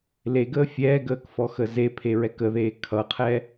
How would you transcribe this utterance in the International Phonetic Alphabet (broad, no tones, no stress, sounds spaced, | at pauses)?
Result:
l e ɡ əː fʲ ɛː ɡ əː k f ɔ x ə z e pʰ e ɹ ɛ k ə ð eː kʰ ʌ qʰ ɛ